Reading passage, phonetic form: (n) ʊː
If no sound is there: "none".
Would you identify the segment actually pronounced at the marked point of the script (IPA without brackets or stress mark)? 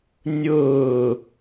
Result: nʲ